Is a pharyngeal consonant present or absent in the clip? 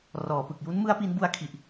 absent